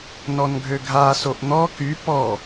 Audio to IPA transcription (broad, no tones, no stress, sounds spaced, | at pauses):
n ɔ n ɡʱ ø ɡʱ a s o ʔ n̪ ɔ k y p ɔ